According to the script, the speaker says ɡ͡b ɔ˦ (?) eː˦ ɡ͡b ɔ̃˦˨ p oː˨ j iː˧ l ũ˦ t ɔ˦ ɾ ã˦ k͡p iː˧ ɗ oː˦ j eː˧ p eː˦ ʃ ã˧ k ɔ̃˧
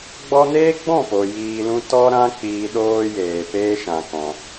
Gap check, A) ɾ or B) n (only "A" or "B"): B